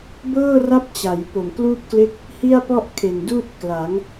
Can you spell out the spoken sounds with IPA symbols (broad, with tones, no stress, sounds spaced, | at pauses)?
b ɤː˥˩ r a˦˥ p̚ t͡ɕ a˩˦ j p o˨˩ m k l uː˥˩ p̚ k l e˥˩ k̚ | h i˥˩ a̯ p ɔ˥˩ ʔ kʰ e˨˩ n d uː˥˩ t̚ k l a˩˦ ŋ